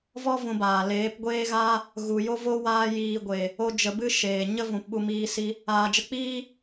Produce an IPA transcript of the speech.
vɔ˦ vũ˧baː˨ leː˨˦pɡʷeː˦ɣaː˦ | ɣu˨jo˦vo˦ waː˦jiː˧ ɡʷe˨ | o˦d͡ʒə˧bɨ˦ʃeː˨ ɲə˦vũ˨pɓu˧miː˧ si˧ | aː˨d͡ʒə˧k͡piː˦

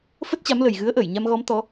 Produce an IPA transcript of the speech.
fə˦˥t̚t͡ɕa˨˦mlə˨˩j ɣɨ˨˦ə̯ʔəː˧˩jɲa˧mɣɔ˨˦m t̪ɔ˨˦

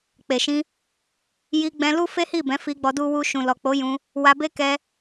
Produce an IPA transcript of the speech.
k͡pe˨ʃĩ˧ | ji˧ɡ͡bɛ̃˧ lu˦fe˦hi˦˨bɛ̃˨˦ fi˧ɡ͡bɔ˧ du˨wu˨ ʃũ˨lɔ˨k͡po˨˦jũ˧ | wa˧be˦ kɛ˦

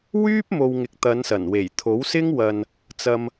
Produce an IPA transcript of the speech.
wyː˥p̚mo˨w ŋɪ˨k̚t̪ɐ˨˧nsɐ˨˩nwe˨˩j t̪ʰo˨˥wsɪ˥ŋ wɐ˨n | t͡sɐ˧m

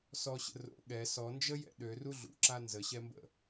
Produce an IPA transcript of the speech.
sɔɕə̰ ro̰ ɠɛ sɔnd͡ʒəjɛ̰ ɗøru ɮṵǁa nzəɕɛmbə̰

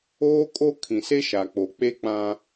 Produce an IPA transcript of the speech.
oː˦kʼo˦ kʰĩ˨se˦ʃa˨k͡po˨ k͡pe˦k͡pã˦

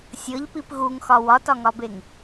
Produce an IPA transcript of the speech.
sʲɤʎpip ɣuŋxɒ wɒtɒŋɒbeŋ

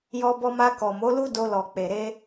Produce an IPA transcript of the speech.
jɔ˧bɔ˧ma˧ kɔ˨mo˨˦lu˦ do˧lɔ˨k͡pe˨ ɾe˧

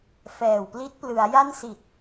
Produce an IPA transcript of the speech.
fɛː˨˩wpli˦˥t̚ plɯ˩˦a̯ja˥˩n si˨˩t̚

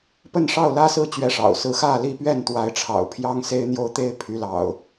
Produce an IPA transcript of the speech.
pə˥˨nʂɑ˥˨ʊ̯lä˦sɹ̩˥˨ t͡ɕɥɛ˨˦ʂɑ̰˨˩ʊ̯sɹ̩˨˦ xä˥˨li˥˨ pɥɛ˥˨nt̪wa˨˦ɪ̯ʈ͡ʂʰɑ̰˨˩ʊ̯ pʰjɑ˦ŋse˦ɪ̯n̪jo˦ʊ̯t̪e˦ɪ̯ pʰy˨˦lɑ̰˨˩ʊ̯

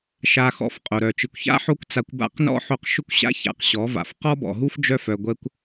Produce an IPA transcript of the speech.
ʃa˧xɔ̰˧f qʼo˨ɾœ˨ t͡ʃɨ˨kʷça̰˦ ħo˦kʷt͡sa˧kʷba̰˦˨q nɔ̰˦ħo˧q ʃʏ˦kʷɕa̰˦ ça̰˧qɕɔ˨˦va̰˨f qɔ˦bɔ̰˨ɦu˦f d͡ʒœ˦fœ˧ ɡʷɛ˦kʷ

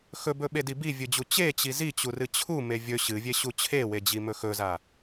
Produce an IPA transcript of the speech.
xɵbɵɓedi bivʲɨd͡ʑu t͡ɕet͡ɕi zit͡ɕurɨ t͡ɕʰume vʲɵ ɕɨvʲeɕu t͡ɕʰewed͡ʑimɵ xɵza

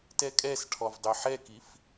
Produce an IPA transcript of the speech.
tɛkʼɛsʈʰɔv dˤøħɛkif

